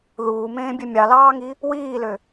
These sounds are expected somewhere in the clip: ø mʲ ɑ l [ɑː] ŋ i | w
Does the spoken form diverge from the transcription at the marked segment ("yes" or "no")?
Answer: no